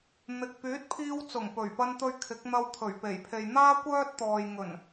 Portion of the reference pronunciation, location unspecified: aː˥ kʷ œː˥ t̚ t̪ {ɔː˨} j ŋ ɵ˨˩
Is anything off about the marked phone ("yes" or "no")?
no